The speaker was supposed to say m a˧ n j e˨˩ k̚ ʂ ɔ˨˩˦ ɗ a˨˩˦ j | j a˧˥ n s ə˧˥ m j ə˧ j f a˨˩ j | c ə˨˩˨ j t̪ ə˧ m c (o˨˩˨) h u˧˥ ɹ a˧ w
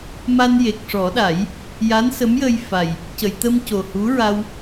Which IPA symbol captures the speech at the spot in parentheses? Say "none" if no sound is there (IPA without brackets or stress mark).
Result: o˨˩